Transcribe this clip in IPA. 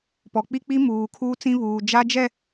pɔ˨k͡pi˦k͡pi˦ muː˨kʰuː˦t͡sĩ˦ βuː˨ d͡ʒa˦d͡ʒɛ˦˨

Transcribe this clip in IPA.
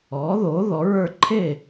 ɔː˩˥ðoː˩˥ ðɔ˩˥ɹə˞˥˨ ǃʰe˥˨

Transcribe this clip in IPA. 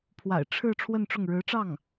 pʰwa̰˨˩ɪ̯ʈ͡ʂʰɻ̩˥˧ ʈ͡ʂʰwə˥˧nʈ͡ʂʊ˥˩ŋ ɻɻ̩˧˥ʈ͡ʂɑ˥˩ŋ

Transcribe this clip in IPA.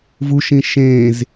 vuʃĩ ʃẽz

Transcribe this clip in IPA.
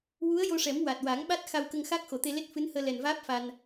wu˧˥ə̯jo˧ʂɛ˨˩˦m wa˨˩t̚wa˨˩˦ŋɓa˦˥t̚ xa˧wkə˧ŋ xaː˦˥k̚xo˨˩˨t̪e˧le˦˥t̚ fɨ˧˥nhəː˧lɛ˨˩nvaː˦˥p̚ fa˧n

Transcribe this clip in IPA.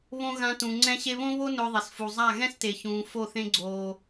βõ˧ ɣã˧tũ˨ŋ͡ǀɛ̃˦ ɕe˧βõ˦βo˦ nʊː˧ðˤe˨sfu˨zˤa˦˨ ɣɛ̃˦ste˨çũː˨ fo˦˨θẽ˦ɡ͡ǀoː˧

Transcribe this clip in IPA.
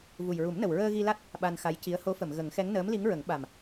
vu˨˩jɹu˨˩˦mnə˨˩wɹəː˧ ɣi˧la˦˥t̚ | ɓa˧nxa˧˥j ci˧˥ə̯ ho˧˥fə˨˩˨mɣə˨˩˦ŋxɛ˧˥ŋ nəː˧˥mli˧˥ŋɹə˨˩˦ŋ ɓa˨˩m

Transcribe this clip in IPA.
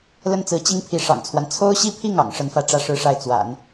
lə˥˩nt͡sɹ̩˧˥ t͡ɕi˥ŋpʰi˧˥ʂɑ̰˨˩ŋt͡sʰwa˦n t͡sʰo˥ʊ̯ɕi˥˧pʰi˥˩ŋ ɑ̰˨˩ŋʂə˧˥nfä˥˧ ʈ͡ʂä˥˩ʂɻ̩˥ʂa˥˩ɪ̯ t͡swa̰˨˩˦n

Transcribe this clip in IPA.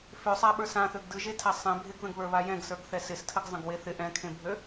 føsˤaɓə˞s ãθøɡ dɯʒetʰa sˤɛ̃ bʱɪɡðə̃ɡβə˞βa jɛ̃ɡsə˞ɡθɛ sɪstʰəɡ zˤə̃ɡweθɪ ʔɛ̃kʰẽbʱø

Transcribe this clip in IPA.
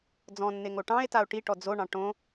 d͡zɔ̃nːe ŋoʈɑ̃e̯tao̯ ʈiʈɔ d͡zoɳɑ̃ ʈõ

